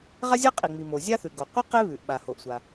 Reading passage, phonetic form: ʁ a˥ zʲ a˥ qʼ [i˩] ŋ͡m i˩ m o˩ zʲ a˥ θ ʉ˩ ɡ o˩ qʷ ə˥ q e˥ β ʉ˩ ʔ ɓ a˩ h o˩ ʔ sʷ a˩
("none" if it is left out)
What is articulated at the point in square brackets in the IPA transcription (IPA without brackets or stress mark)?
i˩